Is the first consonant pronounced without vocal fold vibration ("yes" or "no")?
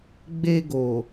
no